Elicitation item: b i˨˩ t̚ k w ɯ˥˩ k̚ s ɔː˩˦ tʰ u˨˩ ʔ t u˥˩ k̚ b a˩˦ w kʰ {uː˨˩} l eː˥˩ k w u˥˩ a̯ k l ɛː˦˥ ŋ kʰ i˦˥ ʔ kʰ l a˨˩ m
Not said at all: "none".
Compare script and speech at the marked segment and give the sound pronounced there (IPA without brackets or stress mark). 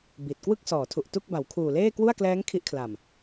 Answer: uː˨˩